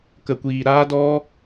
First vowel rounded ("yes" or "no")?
no